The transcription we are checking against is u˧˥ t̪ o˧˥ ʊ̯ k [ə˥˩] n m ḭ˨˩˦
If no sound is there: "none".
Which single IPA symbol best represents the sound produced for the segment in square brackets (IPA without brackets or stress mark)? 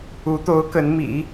ə˧˥